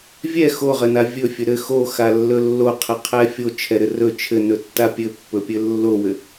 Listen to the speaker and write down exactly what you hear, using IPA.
vʲ ɛ x o ʁ ɘ n a vʲ ɵ fʲ ɵ ɾ ɘ x o x a lː ɵ lː o qʰ ɘ qʰ ɛ fʲ o t͡ʃʰ ɛ ɾ ɘ r ɵ t͡ʃʰ ɘ n ɵ tː a pʲ ɘ pː ɵ pʲ ɘ lː o w ɘ

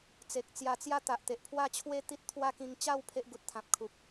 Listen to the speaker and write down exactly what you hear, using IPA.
t͡s e˨ k̚ t͡s j a˧ t͡s j a˥˧ t̪ a˨ ʔ t̪ e˨ ʔ pʰ w a˥˧ t͡ɕʰ w e˥˧ t̪ i˦ t̚ t̪ʰ w a˦ k ĩ˧ ŋ t͡ɕ a˥˧ w pʰ e˦ ʔ ɡ u˨ t̚ t̪ʰ ã˨ p̚ kʰ u˨ p̚

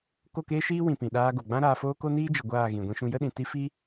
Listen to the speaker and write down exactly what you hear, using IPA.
k o˦˨ k eː˦ ʃ iː˦ w ĩ˨ p ĩ˨ ɗ aː˧ ɡ o˨ ɡ͡b ã˦ ɾ aː˧ f oː˦ k o˦ n iː˦ d͡ʒ ə˨ ɡʷ aː˦˨ ɣ ĩ˨ ɡʷ ĩ˧ ʃ ũ˧ j ə˦ ɗ ĩ˨ t i˦ f i˦

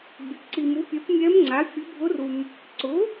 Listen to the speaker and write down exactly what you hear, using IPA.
bʲ ɛ˨ p ǀ i˨ m u˩˥ pʲ ɛ˩˥ p mʲ ɛ˧˥ m ŋ͡ǀ a˩˥ fʲ ʊ˧˥ bʱ ʊ˧˥ r u˨ m | ǀ ʊ˩˥

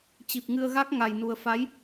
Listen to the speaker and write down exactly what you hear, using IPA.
t͡ɕ i˨˩ p̚ ŋ ɨ˧ ə̯ ɣ a˦˥ k̚ ŋ a˨˩ j n u˨˩ ə̯ f a˨˦ j

